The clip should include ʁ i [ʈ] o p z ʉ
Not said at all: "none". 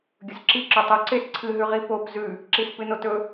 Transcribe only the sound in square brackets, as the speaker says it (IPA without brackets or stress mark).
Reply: p